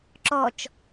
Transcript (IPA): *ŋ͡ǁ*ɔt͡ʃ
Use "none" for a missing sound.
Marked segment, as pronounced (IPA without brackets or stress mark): ǁ